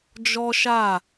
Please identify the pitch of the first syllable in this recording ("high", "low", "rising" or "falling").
high